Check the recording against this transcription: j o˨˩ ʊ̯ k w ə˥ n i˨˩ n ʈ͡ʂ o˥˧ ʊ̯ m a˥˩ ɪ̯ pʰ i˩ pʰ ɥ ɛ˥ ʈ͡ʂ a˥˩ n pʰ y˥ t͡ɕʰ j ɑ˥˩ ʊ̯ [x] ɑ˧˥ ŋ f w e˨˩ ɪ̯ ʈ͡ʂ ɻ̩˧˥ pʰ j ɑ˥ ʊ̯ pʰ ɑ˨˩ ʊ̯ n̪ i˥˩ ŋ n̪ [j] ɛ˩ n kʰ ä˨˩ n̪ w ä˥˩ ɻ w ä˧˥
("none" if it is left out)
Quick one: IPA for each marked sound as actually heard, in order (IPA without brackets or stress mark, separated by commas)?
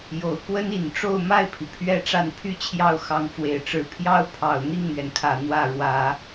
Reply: x, ɥ